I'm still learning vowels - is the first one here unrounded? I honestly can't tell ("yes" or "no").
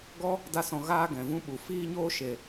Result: no